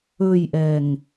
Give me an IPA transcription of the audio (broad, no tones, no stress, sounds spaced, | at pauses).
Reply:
ɵ j ʔ ɛ ŋ